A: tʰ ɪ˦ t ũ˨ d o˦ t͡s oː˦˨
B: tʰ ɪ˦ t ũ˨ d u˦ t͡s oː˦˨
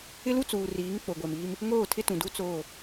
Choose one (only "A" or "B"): B